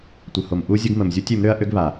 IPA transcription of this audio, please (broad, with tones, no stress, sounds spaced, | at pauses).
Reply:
tʷ ə˨ h o˨ m ʔ u˦ zʲ ə˦ ɡ m ə˨ m zʲ u˦ tʲ ø˨˦ m ɾ ø˦ ɐ̯ ʔ ø˦ ɡ β a˨